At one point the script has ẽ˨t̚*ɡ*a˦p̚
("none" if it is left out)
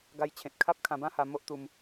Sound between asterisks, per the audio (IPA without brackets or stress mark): kʰ